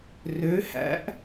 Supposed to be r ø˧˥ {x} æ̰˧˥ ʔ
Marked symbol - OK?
no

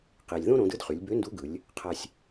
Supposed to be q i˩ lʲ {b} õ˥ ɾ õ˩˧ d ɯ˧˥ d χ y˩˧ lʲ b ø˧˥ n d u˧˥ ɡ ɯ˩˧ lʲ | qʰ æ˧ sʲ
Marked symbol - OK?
no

